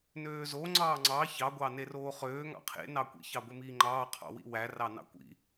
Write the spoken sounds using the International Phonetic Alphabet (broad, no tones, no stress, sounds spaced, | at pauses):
n øː z o ŋ͡ǀ ɑː ŋ͡ǀ ɑ ç ɑ ɡʷ ɑ n e r oː χ øː ŋ ɑ̰ qʰ ḛ n ɑ kʷ ḭ ç ɑ ɡʷ e m iː ŋ͡ǃ ɑː qʰ ɑ̰ w ḭ w æ r ɑ n ɑ̰ kʷ ḭ